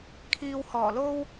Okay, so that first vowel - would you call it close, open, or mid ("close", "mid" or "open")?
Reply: close